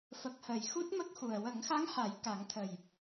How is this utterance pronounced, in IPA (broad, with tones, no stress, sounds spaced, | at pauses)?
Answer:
f ə˨˩ k̚ h əː˨˩˨ j x u˦˥ t̚ m ə˦˥ k̚ x u˨˩ ə̯ w ə˨˩˦ ŋ x a˧˥ ŋ h a˨˩˦ j k a˨˩˦ ŋ t̪ʰ ə˨˩ j